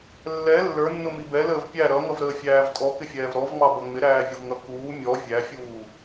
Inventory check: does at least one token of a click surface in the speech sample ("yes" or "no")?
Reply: no